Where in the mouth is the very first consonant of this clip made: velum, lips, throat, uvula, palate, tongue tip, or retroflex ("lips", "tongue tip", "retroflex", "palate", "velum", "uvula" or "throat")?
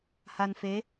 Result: throat